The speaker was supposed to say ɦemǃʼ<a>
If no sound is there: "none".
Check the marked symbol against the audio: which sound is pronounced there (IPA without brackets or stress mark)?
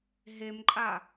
a